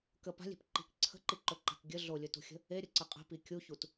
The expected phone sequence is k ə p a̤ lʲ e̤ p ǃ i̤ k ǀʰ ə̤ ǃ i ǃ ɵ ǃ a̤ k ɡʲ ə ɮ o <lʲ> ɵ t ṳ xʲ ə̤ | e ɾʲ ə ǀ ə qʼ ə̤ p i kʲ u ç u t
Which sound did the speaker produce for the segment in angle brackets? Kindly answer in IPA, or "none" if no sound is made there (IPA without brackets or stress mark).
lʲ